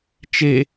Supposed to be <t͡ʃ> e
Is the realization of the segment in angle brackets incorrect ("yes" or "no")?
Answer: no